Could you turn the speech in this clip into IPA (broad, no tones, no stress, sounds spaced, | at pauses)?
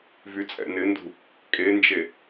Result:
v y t͡sʼ ɛ̰ n ɪ n d ṳ | kʼ e n d͡ʒ e